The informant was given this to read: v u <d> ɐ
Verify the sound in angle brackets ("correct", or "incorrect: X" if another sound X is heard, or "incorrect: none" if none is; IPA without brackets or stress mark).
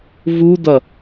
correct